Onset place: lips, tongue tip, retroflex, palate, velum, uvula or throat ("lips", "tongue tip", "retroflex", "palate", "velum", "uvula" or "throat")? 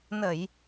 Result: tongue tip